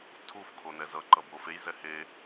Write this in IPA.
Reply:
tʰuf kʰonɛzʌ ǃʌbofej zɛhe

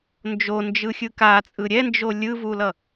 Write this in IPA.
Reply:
nd͡ʒond͡ʒɯxʲɯ kat͡sʼɯ ɾʲɛnd͡ʒo lʲɯvulʌ

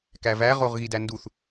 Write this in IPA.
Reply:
kævæ ʁoʁɣidænduθ

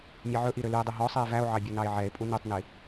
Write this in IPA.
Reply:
mʲɛʕɵʔiɾø lye̯dˤy ɦɔsˤie̯ væo̯ʕɑbʲu nɑe̯ʕɛe̯pʼu nytˤni

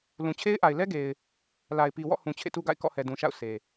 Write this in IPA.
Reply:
lũ˨t͡ɕʰe˦ɪ̯ʔa˨ɪ̯ lɛ˦ɡe˨ɪ̯ | la˨ɪ̯pi˨wɔ̰˦˨hũ˨ t͡ɕʰḛ˦˨tu˦ɡa̰˦˨ɪ̯ kɔ̰˦˨hɛ˨dũ˨ʃa̰˦˨ʊ̯ sʰe˨

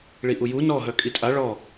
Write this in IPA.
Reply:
ɭiʔuju nɔ ɦœkʼitʼa ɭɔ

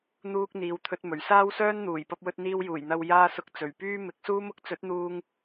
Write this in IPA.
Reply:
n̪uː˥k̚ n̪iː˨wt̪ʰɵ˧t̚ mɵ˨˩ɥ saː˥wsœː˥n n̪uː˨˩j pɐ˥p̚wɵ˥t̚n̪iː˥w juː˨˩jn̪ɐ˧w jaː˧sʊ˨˥k̚ t͡sɵ˨˩ɥpyː˥ mɪ˨˥k̚suː˥mʊ˥k̚ t͡sɵ˨˥t̚n̪uː˧ŋ

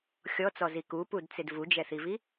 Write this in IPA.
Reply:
xʲɔt͡sɔzi kupudt͡sɪd vud͡ʒɛθivi

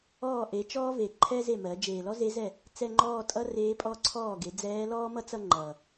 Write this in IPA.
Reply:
ɔː˥˩ʔe˩˥ t͡ʃɔː˥ve˨˩ ǃʰɛ˥ze˥˩mɜ˩˥ d͡ʒeː˨˩lɔ˥ze˧˥zɛ˥˩ | t͡sɛ˥˧ŋ͡ǃɔː˥˧tʼʌ˥ reː˧˥pʼɔ˥˧ǀʰɔː˥˩ɡe˩˥ d͡zɛː˧˥lɔː˥mʌ˥t͡sʌ˥˧ ŋ͡ǃʌ˨˩

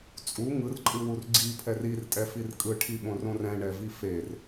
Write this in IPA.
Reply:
t͡sʼu ŋɯrǃʼɯwur ɡ͡ǀipʰɛr irtʼɛfir kʼɯʈʰiɓõrõr ɛ̃ɳɛvi fer

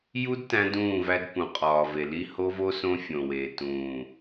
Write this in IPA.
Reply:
ju˦d tæ̃˦dũː˦˨væ˦d pũ˨qʼɒː˨ve˨li˦ ho˦vo˦ sõ˦fʲõ˨weː˨ tũː˨

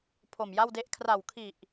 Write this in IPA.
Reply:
pʰo˨˩mja˥˩wde˦˥ʔ kʰra˨˩wkʰi˨˩ʔ

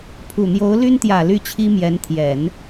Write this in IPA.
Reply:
pʰu˨˩n̪jo˧˥ʊ̯ly˥nt̪jä˨˩ ly˥˩t͡ɕʰi˥mjɛ˧˥n t̪ʰjɛ˨˩˦n

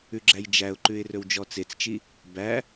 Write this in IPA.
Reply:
ʉɡ͡ǁæjd͡ʒæʊ̯ǃʉɪ̯ rɵwd͡ʒɔt͡set͡st͡ʃi | bæ

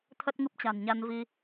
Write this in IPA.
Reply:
t̪ʰə˦˥t̚ŋɨ˦˥p̚t͡ɕa̤˨˩nɲa˧n vi˧

